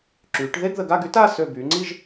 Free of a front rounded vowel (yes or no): no